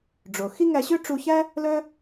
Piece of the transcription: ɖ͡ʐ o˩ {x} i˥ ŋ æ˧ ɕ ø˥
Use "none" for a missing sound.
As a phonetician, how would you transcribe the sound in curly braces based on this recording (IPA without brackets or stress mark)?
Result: x